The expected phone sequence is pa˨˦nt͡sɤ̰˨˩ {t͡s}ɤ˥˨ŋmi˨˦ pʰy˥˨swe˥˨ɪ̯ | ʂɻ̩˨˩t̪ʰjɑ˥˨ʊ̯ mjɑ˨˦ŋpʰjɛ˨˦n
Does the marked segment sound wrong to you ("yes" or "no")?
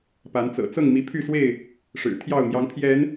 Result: no